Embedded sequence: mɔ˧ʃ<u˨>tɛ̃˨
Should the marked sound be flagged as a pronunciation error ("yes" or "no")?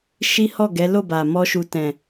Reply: no